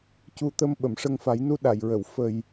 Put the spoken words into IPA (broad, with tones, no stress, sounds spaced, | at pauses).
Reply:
c u˧ t̪ ə˧ m ɓ ə˨˩˨ m ʂ ə˧ ŋ f a˨˩˦ j n u˧ ɗ a˨˩˨ j ɹ ə˨˩˨ w f ə˨˩ j